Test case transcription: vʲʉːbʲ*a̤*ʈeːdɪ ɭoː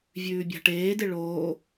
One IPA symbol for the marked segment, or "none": a̤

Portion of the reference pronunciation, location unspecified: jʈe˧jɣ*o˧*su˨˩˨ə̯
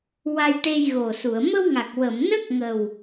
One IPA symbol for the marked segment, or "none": o˨˩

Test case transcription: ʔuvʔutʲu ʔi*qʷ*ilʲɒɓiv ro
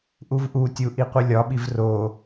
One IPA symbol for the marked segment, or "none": qʷ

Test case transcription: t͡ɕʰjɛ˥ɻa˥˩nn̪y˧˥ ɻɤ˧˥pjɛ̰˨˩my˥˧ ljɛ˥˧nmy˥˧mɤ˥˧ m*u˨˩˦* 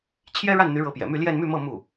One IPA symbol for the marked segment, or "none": u˥˩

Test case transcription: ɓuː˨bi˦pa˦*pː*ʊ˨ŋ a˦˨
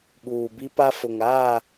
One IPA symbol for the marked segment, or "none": f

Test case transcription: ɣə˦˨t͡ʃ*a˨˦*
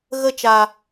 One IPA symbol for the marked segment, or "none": a˨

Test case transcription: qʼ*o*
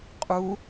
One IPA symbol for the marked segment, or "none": u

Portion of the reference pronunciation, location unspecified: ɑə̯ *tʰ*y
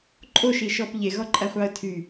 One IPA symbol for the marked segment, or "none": tʰ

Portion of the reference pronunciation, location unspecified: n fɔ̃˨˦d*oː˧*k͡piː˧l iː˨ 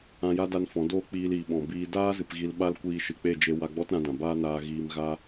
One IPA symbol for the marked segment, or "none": oː˦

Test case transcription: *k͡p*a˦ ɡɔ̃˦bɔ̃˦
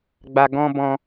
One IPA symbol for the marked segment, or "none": ɡ͡b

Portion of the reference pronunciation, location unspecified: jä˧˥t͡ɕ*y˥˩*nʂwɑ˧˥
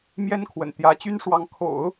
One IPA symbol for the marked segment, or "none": y˥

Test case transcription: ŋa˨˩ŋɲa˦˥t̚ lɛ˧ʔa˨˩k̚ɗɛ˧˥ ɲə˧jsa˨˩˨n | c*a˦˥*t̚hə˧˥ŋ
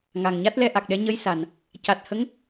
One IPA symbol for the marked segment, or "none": a˨˩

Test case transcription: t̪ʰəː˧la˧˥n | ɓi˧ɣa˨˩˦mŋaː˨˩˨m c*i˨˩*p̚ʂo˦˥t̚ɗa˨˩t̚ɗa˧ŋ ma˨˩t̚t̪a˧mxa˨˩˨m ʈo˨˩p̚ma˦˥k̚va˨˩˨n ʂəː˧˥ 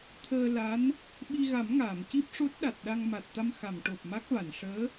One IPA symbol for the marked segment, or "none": i˦˥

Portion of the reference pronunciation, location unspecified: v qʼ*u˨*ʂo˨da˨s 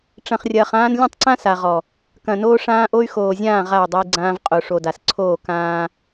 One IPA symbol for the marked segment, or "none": o˨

